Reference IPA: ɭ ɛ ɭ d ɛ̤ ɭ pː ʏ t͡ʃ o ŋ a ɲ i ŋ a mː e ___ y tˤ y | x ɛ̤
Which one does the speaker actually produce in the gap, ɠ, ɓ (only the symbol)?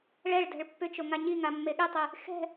ɠ